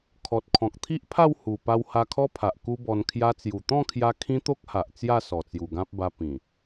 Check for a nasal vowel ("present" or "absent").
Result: present